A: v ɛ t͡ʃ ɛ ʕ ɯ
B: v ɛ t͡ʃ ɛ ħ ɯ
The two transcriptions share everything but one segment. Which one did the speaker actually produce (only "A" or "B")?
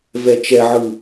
A